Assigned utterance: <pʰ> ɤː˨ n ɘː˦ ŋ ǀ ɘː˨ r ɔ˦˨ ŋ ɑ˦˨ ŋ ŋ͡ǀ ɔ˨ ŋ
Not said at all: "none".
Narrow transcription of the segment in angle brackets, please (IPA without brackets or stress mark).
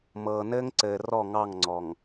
m